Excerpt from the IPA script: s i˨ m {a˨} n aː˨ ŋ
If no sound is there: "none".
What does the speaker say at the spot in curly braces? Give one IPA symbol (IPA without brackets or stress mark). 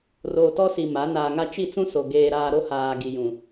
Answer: a˨˦